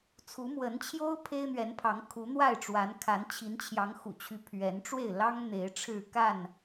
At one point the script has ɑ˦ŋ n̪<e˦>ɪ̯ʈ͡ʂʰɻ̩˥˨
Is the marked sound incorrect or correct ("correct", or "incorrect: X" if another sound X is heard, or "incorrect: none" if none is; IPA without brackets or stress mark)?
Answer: incorrect: e˨˦